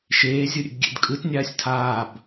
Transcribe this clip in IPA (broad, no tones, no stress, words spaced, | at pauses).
ʃeː zʲɯɾʲḛbɡʲḛdkʼɯt nʲaːsʲtʰaːb